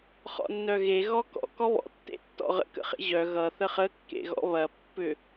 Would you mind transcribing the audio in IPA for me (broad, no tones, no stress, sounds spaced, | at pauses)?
χ ɔ̰ nː œ ɣ e ɣ ɔ k ɔ̰ k ɔ β ɔ̰ tː ḛ tː ɔ̰ ʁ ə̰ k ə̰ χ ḛ ʑ œ ɣ ʌ θ ə χ ə kː ḛ ɣ ɔ̰ β ɐ pː ʏ